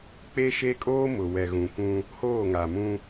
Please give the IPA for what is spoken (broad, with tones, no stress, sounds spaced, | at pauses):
k͡p e˦ ʃ e˦ kʼ oː˦ m ʊ˨ w ɛ˨ ɣ ũ˨ kʷ ũ˦ | h oː˦˨ ŋ a˨ m ũ˦